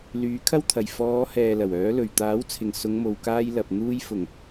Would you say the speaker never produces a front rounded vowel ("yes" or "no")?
no